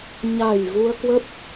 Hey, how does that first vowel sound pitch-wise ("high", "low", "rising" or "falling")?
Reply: low